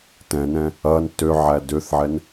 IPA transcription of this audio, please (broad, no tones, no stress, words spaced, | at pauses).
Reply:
tɛ̃nɛ̃ | ɐn tøʕæ døθʕɛn